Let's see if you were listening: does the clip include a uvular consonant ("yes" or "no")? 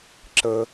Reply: no